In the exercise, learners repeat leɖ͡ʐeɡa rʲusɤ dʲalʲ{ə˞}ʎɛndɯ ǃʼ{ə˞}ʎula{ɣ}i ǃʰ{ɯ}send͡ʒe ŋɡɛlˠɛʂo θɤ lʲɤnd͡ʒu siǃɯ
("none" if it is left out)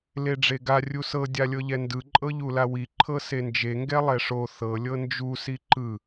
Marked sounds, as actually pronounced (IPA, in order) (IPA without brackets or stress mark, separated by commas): ɤ, ɤ, w, ɤ